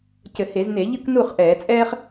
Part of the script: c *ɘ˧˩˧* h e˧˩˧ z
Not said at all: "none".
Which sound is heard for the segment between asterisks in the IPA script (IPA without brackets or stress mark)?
ɘ˧˩˧